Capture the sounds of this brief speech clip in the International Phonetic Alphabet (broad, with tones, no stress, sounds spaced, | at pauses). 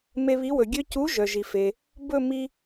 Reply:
m e˧ β i˨˥ w ɵ˩ ɡʲ ø˧ c u˨˥ ʒ œ˩ ʒ i˩ f e˩ | b ɵ˥˧ m i˧